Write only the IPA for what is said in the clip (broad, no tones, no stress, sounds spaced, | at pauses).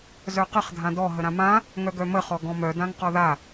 z œ q ə χ dʱ ã d ɔ ɦ ə ɾ ã m ã | ŋ œ ɡ œ m ə χ ɔ ɡ ɔ̃ m œ d ã ŋ q ɔ ð a